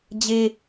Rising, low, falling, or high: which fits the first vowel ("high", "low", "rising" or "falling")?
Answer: high